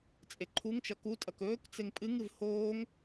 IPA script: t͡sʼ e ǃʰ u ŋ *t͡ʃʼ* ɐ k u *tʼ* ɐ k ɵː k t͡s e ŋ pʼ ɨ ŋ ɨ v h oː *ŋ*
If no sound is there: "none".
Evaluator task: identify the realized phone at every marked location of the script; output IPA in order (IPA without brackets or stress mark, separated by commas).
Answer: t͡ʃ, tʼ, ŋ